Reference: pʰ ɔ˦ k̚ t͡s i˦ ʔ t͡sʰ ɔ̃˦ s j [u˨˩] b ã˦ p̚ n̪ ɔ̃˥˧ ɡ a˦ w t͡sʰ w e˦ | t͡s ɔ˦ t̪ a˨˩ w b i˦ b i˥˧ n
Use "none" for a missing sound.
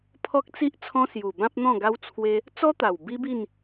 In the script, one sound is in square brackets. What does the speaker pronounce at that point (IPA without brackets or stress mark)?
u˨˩